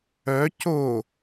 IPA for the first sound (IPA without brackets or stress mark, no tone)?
œ